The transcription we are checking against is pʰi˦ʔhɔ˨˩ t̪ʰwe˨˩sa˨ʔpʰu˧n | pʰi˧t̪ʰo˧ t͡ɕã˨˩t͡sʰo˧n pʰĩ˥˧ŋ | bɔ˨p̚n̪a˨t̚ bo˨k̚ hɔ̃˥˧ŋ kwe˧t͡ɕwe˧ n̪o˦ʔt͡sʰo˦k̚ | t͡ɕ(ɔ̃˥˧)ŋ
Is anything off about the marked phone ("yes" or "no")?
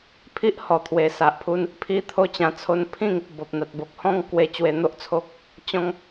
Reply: no